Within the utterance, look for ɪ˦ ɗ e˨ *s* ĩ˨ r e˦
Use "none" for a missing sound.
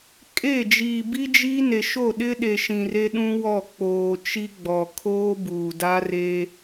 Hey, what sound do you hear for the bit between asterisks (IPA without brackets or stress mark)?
ʃ